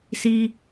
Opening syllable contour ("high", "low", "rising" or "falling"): low